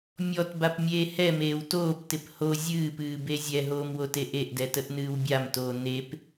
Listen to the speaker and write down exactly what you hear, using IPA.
mʲ ɔ t b a p mʲ eː h ɛ m eː w t oː p t ɪ p h o zʲ ɨː p ɨː b e zʲ ɛ ɦ oː m w o t e ʔ e ʔ d ɛ t ə ʔ n ɨː w bʲ a m t oː n e p

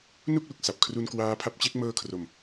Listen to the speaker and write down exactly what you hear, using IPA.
n u˥˩ k̚ l u˨˩ k̚ s a˨˩ p̚ kʰ r u˧ n k w aː˦˥ pʰ a˦˥ p̚ t͡ɕ e˦˥ k̚ m ɤː˧ kʰ r o˨˩ m

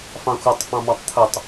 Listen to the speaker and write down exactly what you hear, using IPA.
f ɑ̃ xʷ ʌ tˤ f ɑ̃ m ɑ tˤ t̪ʰ ʊ tˤ

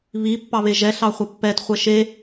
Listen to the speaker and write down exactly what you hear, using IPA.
β i pː ɑ β e ʒ ɛ ɬ ɑ χʷ ɐ pː ɛ t χʷ ɛ ʃ e

